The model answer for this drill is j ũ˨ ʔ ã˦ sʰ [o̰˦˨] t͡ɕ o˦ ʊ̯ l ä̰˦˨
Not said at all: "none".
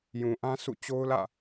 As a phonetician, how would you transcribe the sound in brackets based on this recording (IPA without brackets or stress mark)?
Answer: ṵ˦˨